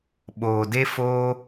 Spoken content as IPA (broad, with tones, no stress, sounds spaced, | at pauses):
ɓ oː˧ d e˦ f oː˦